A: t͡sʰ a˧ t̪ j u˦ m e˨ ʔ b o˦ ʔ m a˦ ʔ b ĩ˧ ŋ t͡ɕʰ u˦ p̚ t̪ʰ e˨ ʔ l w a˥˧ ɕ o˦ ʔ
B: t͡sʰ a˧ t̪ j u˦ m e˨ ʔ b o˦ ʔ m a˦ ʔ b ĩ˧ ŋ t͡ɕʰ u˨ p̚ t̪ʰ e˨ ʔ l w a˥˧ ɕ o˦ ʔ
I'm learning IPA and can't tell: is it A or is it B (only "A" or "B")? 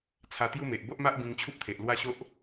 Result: A